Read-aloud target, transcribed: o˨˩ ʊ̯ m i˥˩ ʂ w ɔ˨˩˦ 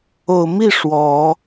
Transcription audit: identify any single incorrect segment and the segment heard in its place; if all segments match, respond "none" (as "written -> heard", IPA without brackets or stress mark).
none